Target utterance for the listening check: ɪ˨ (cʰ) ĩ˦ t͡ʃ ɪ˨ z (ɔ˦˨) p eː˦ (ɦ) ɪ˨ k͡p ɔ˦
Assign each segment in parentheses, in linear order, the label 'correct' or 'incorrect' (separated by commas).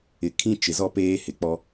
incorrect, incorrect, incorrect